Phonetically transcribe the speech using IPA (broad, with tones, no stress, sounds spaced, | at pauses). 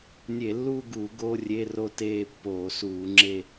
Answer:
nʲ e˧˩˧ lː uː˥˧ ɡ u˧˩˧ ɡ o˧˥˧ rʲ e˧˥˧ r o˥˧ t eː˥˧ pː oː˧˩˧ s uː˧˩˧ ŋ͡ǁ e˥˧